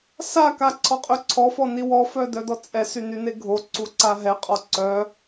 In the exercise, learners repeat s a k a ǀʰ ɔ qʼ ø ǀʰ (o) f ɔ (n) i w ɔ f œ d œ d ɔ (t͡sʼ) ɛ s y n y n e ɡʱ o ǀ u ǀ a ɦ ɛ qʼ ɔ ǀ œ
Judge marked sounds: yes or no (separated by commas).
no, yes, yes